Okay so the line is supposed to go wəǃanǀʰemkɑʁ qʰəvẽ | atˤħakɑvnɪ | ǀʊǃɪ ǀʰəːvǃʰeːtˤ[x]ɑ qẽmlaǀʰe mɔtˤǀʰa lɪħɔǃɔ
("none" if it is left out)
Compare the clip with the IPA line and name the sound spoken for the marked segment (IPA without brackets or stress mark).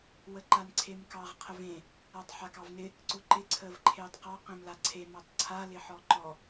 q